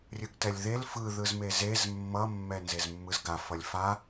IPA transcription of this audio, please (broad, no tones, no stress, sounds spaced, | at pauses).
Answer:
rʲ ɯ ɡ t ɛ lʲ ð e l f ɯ ð ɯ z m e z e z mː ʌ mː ɛ n z e z mː ɯ z ɡ a f ʌ lʲ f a